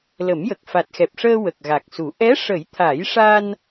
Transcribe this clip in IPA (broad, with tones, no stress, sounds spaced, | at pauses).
l ə˨˩˦ m j ə˨˩ k̚ f a˨˩ t̚ x ɛ˨˩ p̚ ʂ əː˧ w ə˨˩ k̚ ɣ a˨˩ k̚ s u˨˩˦ ʔ ɛ˧˥ ʂ ə˨˩˦ j t̪ʰ a˨˩˦ j ʂ a˧ n